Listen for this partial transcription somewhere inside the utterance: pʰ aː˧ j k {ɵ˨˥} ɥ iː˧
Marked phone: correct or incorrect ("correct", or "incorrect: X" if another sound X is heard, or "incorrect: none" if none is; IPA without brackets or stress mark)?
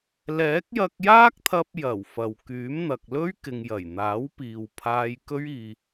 incorrect: ɵ˥